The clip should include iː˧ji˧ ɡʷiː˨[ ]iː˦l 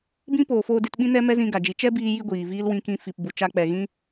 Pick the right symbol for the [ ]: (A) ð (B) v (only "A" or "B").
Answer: B